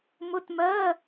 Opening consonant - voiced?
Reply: yes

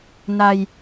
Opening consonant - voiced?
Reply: yes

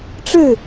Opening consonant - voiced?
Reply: no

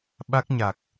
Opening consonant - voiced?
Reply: yes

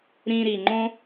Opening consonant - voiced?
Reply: yes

